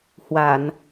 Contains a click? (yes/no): no